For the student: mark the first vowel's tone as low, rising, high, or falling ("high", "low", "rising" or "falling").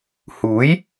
rising